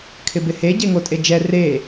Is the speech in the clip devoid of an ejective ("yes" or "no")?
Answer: no